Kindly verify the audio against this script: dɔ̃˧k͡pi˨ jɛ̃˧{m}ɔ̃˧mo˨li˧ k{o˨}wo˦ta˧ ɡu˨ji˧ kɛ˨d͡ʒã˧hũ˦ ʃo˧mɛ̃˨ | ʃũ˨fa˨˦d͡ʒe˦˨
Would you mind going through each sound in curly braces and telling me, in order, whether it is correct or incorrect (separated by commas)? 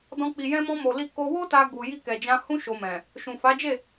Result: correct, incorrect